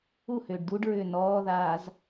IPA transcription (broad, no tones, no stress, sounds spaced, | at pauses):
u h ʏː ɖ d u ɖ ɹ ʏː n ɔː ð aː z